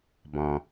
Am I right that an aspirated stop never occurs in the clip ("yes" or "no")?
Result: yes